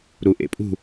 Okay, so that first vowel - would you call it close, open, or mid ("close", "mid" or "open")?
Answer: close